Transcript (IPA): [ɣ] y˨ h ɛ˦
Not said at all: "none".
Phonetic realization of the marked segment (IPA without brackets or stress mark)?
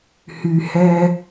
h